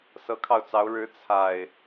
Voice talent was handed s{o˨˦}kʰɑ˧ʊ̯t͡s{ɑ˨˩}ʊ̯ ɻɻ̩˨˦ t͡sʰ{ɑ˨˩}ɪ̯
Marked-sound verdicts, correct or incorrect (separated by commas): incorrect, incorrect, incorrect